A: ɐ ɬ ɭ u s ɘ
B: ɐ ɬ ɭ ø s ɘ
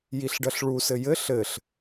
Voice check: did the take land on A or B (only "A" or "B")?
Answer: A